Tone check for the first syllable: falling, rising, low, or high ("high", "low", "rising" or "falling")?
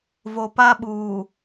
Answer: low